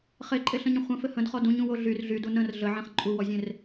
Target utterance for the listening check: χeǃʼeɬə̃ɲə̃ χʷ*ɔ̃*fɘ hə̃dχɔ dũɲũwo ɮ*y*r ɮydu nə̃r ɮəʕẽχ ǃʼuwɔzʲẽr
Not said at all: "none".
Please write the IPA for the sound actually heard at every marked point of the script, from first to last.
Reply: ə̃, y

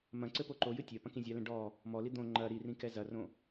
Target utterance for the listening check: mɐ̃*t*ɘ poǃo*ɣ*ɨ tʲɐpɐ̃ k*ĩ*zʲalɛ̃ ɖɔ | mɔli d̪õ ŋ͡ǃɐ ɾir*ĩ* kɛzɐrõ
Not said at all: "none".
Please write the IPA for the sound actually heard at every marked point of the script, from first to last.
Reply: ǀ, j, ĩ, ĩ

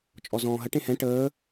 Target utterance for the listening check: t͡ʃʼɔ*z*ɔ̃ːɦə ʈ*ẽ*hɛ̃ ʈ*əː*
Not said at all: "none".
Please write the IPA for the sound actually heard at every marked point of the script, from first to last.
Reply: z, ẽ, əː

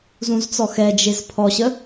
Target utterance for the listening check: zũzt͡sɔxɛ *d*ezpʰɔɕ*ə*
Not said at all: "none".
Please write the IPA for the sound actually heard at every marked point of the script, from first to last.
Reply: d͡ʒ, ə

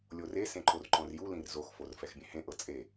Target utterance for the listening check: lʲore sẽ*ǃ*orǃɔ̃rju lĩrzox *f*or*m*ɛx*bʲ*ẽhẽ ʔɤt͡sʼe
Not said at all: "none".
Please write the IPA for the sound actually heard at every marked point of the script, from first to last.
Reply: ǃ, f, f, bʲ

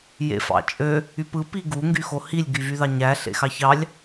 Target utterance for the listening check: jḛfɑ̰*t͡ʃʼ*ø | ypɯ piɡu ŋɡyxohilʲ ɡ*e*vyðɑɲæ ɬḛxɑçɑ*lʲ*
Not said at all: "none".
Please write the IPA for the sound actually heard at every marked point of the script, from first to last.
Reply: t͡ʃʼ, y, lʲ

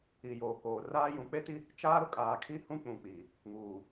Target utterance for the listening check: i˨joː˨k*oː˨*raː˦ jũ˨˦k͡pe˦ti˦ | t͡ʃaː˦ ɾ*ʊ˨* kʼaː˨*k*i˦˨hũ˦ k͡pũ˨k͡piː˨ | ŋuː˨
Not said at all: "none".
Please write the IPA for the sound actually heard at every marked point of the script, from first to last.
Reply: oː˨, ʊ˨, kʰ

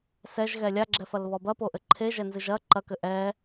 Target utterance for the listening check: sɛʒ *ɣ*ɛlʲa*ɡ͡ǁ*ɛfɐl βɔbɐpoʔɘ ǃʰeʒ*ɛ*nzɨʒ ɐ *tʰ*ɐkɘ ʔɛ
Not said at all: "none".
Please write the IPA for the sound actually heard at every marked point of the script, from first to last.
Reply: ɣ, ɡ͡ǁ, ɛ, ǃ

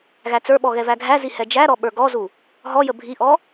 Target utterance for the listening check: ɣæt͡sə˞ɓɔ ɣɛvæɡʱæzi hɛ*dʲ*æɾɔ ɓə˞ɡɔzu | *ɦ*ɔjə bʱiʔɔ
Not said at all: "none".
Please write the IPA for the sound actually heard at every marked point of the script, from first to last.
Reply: d͡ʒ, ɦ

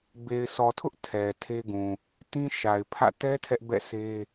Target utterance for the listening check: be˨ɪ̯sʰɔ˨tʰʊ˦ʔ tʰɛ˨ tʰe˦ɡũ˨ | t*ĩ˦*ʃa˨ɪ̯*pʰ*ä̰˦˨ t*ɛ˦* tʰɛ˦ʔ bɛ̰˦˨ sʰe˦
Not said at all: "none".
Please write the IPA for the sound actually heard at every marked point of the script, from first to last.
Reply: ĩ˦, pʰ, ɛ˦

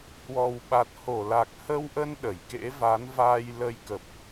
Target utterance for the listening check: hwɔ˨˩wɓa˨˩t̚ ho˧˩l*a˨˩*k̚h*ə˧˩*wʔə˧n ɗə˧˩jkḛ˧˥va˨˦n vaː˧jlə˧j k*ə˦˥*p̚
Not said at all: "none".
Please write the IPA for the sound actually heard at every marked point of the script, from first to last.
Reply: a˨˩, ə˧, ə˨˩

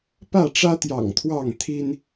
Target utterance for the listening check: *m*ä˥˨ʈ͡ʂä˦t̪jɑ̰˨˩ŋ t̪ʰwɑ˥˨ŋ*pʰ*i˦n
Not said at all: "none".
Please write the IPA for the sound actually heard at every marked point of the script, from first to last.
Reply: p, t̪ʰ

